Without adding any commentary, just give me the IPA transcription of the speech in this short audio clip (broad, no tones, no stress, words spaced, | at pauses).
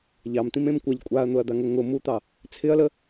ʎɑmt̪ĩmẽm kʷɑʎ kʷʼaɐ̯n̪ʊɐ̯d̪aŋʊ ŋʊ mut̪ɑ | t͡sʰɪɐ̯lə